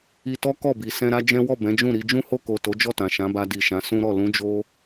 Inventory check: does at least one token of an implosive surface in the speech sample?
no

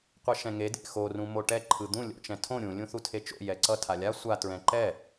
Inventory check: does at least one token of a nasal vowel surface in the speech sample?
yes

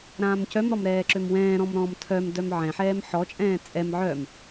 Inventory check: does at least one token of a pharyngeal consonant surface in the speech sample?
yes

